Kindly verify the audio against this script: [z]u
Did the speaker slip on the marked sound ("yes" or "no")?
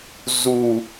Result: no